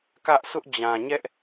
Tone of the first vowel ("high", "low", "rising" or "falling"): high